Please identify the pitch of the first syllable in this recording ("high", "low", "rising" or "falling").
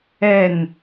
falling